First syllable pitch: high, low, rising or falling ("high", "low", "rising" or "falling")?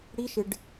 high